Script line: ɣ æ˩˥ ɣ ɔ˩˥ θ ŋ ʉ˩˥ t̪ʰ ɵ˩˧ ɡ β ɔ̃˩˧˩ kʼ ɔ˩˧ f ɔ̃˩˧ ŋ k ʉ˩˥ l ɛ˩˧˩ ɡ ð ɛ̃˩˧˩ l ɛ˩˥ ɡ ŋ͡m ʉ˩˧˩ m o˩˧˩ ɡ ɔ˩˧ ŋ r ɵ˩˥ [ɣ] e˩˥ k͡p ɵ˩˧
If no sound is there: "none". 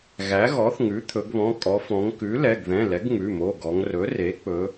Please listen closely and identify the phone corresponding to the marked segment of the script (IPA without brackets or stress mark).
r